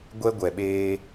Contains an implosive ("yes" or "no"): yes